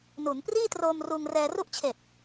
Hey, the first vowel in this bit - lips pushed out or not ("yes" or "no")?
yes